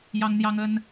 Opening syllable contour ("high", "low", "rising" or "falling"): high